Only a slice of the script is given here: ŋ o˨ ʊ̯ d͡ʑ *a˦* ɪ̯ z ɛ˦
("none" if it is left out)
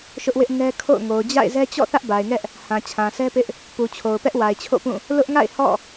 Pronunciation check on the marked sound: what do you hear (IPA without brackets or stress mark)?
a̰˦˨